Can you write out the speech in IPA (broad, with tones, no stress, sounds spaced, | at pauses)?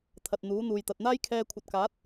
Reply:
t̪ʰ ɐ˨ t̚ n̪ uː˨˥ n̪ uː˨ j t̪ ɐ˨ t̚ n̪ aː˥ j kʰ ɛː˧ kʷʰ ɐ˨ t̚ k aː˨˥ t̚